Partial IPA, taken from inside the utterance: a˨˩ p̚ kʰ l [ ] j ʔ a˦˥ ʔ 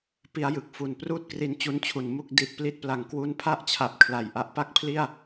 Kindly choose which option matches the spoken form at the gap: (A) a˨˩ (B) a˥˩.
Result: A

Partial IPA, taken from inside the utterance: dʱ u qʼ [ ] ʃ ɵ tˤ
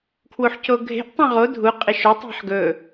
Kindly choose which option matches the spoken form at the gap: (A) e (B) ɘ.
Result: A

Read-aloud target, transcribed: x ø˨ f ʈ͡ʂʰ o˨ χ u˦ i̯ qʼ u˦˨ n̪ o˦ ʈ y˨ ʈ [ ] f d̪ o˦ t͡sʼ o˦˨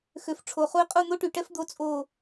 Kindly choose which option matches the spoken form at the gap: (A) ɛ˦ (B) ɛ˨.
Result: A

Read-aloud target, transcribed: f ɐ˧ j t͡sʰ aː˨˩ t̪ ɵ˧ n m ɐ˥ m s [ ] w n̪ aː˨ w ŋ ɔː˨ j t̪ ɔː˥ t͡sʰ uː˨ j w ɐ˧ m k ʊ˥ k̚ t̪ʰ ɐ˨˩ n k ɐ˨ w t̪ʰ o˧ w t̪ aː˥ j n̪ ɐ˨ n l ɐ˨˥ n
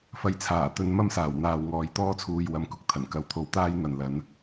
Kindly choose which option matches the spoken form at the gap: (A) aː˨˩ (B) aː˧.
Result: A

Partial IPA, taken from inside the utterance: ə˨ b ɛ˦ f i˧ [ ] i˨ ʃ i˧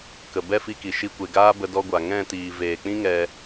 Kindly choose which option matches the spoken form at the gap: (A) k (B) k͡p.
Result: A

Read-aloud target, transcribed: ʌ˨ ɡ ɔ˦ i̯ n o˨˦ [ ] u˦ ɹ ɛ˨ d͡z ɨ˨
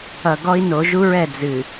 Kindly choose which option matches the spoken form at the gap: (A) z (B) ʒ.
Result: B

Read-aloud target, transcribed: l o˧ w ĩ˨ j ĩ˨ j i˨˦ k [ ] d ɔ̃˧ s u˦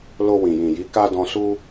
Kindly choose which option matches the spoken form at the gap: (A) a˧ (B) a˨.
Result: A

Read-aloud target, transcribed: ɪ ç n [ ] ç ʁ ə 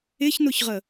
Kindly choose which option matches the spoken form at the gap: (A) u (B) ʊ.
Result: B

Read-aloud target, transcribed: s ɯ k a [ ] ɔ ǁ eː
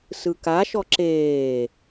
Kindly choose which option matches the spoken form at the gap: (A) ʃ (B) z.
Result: A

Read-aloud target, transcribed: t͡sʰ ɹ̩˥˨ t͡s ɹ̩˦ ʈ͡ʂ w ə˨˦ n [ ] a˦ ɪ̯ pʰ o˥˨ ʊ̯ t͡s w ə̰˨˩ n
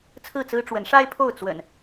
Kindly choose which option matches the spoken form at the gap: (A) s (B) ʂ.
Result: B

